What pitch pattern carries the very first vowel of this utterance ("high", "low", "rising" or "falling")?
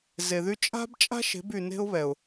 low